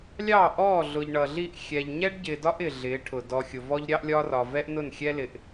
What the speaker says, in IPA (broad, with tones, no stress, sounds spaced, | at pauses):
lʲ ɑ˦˨ ʔ ɔː˦˨ ɮ ʊ˨ ʎ ɳ ʌ˨ ɮ i˦˨ ʔ xʲ ɛ˨ ʎ ɲ ɛ˦ ɖ ɟ ɪː˨ d ɒ˦ ʔ ɪː˨ ɮ ɪː˨˦ ʈʰ ʊ˨ d ɔ˨ xʲ ʊ˨ v ɔ˦ ʎ ɾʲ ɑ˦ ʔ lʲ ɒː˦ r ɒ˨ v ɛ˦ ʔ n ʊ˦˨ n xʲ ɛ˦ l ɪ˨ ʔ